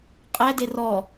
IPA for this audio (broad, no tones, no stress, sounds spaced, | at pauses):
qʼ ɛ d e r ɔ